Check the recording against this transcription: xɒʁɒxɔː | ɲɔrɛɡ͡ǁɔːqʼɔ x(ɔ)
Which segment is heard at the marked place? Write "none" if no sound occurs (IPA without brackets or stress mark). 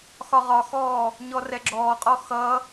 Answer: ʌ